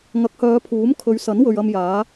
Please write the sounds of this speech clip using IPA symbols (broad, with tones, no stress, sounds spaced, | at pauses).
ŋ ɐ˨˥ k̚ h œː˨˧ pʰ uː˨˥ m kʰ ɵ˨˧ ɥ s ɐ˨˥ n w ɵ˨ ɥ ɐ˧ m j aː˨˥